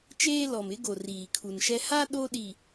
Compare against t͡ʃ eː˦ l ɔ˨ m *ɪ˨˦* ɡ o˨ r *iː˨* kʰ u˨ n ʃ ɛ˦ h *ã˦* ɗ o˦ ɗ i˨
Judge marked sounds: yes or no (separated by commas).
yes, yes, no